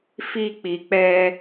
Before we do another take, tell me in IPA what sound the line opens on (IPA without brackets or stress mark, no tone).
f